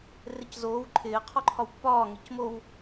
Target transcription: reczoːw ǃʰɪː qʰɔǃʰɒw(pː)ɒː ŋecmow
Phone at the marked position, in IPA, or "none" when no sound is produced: pː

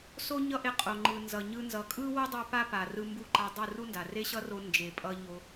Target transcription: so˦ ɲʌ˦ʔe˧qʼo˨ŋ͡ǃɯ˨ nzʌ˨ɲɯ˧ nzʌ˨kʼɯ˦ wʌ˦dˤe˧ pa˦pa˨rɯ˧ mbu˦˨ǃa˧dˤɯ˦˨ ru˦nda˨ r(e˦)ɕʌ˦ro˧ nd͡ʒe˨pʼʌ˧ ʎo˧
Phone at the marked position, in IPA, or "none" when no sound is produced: e˦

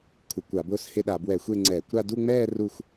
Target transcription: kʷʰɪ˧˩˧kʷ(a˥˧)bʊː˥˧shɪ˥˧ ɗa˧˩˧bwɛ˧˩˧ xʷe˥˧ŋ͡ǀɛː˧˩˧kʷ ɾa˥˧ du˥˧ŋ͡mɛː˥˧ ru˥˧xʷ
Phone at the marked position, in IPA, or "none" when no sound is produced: a˧˩˧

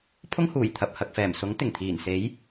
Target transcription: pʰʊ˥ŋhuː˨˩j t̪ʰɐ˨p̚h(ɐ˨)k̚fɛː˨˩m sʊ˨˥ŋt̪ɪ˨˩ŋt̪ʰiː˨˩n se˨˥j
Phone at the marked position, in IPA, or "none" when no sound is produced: ɐ˨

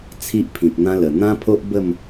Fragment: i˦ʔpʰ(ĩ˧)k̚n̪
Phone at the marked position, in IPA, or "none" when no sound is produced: ĩ˨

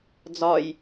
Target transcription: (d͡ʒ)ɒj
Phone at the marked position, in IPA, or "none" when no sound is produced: d͡z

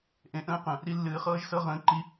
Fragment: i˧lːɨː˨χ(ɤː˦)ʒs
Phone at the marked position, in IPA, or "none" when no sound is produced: ɤː˦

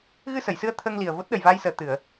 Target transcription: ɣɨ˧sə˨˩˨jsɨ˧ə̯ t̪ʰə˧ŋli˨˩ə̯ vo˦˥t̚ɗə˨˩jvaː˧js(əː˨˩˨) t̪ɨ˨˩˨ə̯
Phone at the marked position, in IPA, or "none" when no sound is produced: əː˨˩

